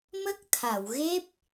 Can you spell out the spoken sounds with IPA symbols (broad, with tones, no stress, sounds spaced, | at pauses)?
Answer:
m ə˦˥ k̚ t̪ʰ a˨˩˨ w ɣ e˦˥ p̚